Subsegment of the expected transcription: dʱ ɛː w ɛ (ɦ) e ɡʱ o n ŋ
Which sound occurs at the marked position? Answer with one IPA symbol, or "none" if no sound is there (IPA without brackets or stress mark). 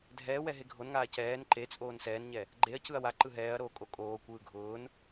ɦ